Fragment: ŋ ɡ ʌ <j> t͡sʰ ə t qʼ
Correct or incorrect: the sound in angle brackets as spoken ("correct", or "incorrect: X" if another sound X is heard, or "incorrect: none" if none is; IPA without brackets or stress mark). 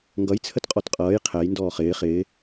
correct